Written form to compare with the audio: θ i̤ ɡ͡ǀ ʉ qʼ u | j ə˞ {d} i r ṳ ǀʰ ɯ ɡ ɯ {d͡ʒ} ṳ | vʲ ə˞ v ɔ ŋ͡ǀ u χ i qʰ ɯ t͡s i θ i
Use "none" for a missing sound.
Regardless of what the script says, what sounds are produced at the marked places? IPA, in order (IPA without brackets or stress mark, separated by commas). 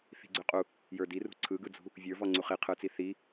d, d͡z